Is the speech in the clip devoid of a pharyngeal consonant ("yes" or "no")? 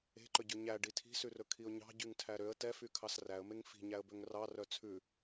yes